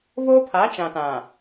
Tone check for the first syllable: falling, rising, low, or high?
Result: high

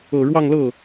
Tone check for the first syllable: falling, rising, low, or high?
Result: low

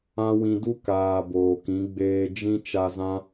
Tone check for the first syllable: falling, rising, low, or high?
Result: high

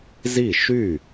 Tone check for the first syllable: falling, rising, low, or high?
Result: falling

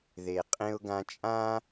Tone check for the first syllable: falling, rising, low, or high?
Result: low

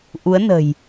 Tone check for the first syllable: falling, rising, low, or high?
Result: rising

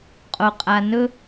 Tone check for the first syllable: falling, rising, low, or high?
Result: low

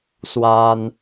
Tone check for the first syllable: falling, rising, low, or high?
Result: high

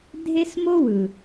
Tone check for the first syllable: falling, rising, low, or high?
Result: high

